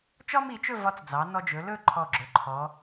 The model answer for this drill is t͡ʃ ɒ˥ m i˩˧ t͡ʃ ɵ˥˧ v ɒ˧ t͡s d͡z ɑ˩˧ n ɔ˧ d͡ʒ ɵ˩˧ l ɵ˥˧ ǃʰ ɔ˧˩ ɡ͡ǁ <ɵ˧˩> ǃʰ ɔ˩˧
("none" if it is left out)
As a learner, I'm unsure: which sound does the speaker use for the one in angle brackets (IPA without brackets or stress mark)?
ɵ˩˧